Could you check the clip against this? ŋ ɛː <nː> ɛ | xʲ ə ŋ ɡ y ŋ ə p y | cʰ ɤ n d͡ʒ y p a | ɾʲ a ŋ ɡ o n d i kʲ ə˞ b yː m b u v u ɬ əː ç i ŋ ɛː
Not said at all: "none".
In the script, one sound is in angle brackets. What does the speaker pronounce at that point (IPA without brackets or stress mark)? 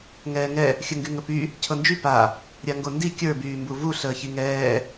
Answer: ŋ